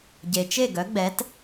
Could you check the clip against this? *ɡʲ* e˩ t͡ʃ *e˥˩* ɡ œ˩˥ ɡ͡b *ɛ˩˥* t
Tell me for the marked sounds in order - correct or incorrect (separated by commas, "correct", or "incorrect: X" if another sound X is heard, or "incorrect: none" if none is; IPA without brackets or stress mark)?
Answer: incorrect: ɟ, correct, correct